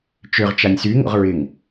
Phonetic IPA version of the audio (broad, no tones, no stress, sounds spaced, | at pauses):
t͡ʃ ø ʁ t͡ʃ a nʲ s y ŋ o̰ ʁ ɹ ɪ ŋ